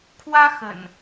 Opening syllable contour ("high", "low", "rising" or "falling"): high